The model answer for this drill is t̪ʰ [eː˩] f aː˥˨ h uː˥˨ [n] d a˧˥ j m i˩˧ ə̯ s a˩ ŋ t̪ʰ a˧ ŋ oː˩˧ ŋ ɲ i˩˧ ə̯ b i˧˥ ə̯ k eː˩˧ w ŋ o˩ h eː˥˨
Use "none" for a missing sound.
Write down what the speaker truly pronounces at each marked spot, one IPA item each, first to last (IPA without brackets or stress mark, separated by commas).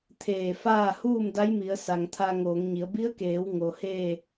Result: eː˧˩, m